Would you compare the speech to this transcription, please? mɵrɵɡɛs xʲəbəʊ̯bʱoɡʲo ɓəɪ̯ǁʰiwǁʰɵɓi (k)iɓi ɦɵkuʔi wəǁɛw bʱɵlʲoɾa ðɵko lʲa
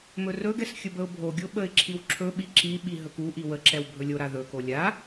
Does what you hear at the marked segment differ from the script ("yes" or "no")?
yes